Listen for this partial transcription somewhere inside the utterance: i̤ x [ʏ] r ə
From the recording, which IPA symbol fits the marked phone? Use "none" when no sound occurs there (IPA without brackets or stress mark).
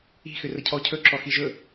ʏ